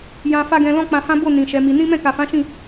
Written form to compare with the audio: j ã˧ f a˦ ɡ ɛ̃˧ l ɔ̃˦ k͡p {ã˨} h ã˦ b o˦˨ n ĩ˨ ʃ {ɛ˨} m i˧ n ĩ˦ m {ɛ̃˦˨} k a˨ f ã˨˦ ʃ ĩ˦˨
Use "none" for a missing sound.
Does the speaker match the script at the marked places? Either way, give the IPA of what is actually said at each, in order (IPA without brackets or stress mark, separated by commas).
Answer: ã˧, ɛ˨˦, ɛ̃˦˨